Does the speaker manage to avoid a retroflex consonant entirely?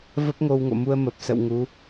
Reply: yes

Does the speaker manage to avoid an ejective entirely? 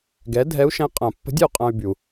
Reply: no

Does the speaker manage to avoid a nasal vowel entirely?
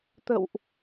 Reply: yes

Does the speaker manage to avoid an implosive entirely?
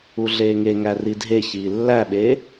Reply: no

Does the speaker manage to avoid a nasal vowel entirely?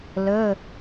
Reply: yes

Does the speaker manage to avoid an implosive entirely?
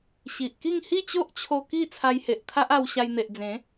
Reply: yes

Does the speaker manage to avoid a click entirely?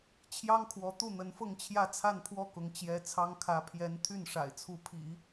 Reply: yes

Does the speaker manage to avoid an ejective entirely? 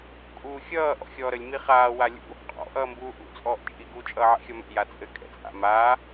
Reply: no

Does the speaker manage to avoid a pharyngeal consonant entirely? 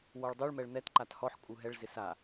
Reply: no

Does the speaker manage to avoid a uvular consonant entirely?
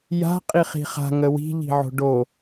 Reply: no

